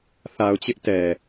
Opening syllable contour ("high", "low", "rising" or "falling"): low